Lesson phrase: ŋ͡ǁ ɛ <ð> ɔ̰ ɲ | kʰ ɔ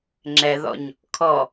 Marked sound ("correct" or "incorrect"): correct